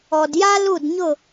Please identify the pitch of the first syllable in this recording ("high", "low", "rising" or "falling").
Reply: low